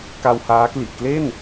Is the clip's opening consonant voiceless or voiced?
voiceless